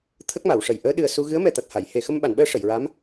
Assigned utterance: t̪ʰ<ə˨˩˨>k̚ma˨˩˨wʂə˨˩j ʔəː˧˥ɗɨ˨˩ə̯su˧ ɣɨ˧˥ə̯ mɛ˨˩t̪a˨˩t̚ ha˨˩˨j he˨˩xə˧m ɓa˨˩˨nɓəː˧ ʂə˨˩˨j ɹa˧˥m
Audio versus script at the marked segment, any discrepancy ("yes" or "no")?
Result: yes